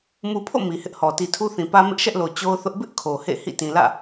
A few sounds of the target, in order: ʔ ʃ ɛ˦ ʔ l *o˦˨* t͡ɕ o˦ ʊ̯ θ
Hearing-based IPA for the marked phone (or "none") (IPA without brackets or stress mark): o˨